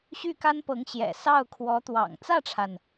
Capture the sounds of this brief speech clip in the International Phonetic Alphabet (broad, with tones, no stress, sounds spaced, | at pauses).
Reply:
ɕ y˥˩ k a˥ n p ɤ˧˥ ŋ ɕ j ɛ̰˨˩ s ɑ˥˩ ʊ̯ kʰ w ɔ˧˥ t̪ w ɑ̰˨˩ ŋ t͡s ä˥˩ ʈ͡ʂʰ a˩ n